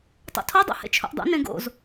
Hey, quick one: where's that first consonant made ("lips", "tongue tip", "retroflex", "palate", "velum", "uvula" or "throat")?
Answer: tongue tip